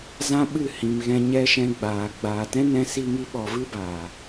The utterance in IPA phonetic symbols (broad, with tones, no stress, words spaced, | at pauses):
zã˦ɓɨ˦˨hĩ˨m ɣɛ̃˧ ɲɛ˦ʃɛ̃˧ɡ͡baː˨ ɡ͡baː˨tɛ̃˦nɛ̃˧ si˧ŋi˧ɓɔ˨ vɨ˦baː˨